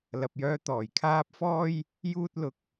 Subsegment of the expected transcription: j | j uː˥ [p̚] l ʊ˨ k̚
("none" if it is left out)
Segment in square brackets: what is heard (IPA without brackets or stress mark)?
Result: t̚